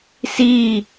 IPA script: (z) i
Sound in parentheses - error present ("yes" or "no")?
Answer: yes